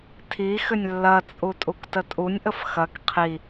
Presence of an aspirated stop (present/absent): present